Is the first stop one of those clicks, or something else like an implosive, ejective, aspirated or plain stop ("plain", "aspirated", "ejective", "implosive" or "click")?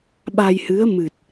implosive